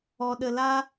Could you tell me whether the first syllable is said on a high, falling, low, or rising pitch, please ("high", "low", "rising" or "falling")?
low